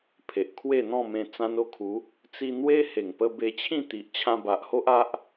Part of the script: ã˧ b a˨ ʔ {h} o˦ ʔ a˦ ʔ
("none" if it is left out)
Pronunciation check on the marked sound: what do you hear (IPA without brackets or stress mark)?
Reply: h